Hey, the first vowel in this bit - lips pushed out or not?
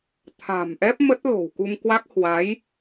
no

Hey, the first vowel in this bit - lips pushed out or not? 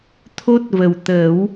yes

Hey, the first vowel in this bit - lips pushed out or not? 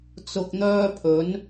yes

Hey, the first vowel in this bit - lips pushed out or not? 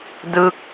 no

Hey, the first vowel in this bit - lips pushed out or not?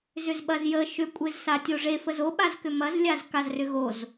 yes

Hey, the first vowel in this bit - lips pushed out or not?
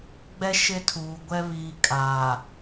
no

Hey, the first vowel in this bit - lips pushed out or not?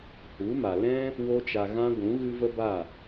yes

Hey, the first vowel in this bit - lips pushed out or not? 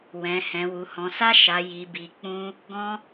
no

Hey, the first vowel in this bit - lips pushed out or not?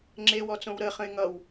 no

